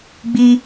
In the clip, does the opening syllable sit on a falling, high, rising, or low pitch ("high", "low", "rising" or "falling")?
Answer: high